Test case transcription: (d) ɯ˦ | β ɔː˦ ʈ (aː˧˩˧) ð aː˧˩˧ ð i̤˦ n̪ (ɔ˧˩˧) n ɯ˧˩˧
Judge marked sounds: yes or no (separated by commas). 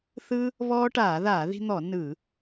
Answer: no, yes, yes